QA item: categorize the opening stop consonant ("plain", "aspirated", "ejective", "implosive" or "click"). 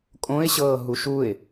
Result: ejective